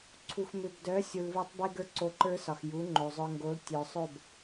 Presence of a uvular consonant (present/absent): absent